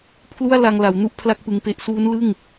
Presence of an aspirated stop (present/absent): present